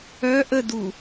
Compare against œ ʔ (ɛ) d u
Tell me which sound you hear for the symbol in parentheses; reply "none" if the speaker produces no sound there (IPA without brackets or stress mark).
ə